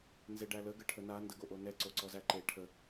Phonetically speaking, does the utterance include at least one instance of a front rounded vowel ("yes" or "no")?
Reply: no